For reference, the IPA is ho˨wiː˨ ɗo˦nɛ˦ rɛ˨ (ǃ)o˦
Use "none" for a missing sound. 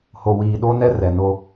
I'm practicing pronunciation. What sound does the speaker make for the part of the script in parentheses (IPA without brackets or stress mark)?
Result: n